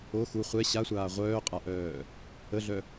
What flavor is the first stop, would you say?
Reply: ejective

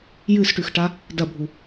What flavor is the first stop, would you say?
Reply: plain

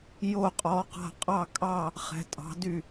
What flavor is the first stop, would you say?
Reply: ejective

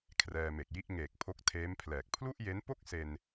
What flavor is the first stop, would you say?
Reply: aspirated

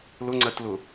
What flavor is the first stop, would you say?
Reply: click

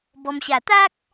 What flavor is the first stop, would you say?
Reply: plain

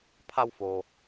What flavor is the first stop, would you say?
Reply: aspirated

